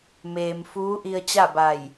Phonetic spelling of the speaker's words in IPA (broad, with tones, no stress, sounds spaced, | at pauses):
m eː˩ m f uː˧˥ ʔ i˧ ə̯ t͡ɕ a˥˨ b a˧˩ j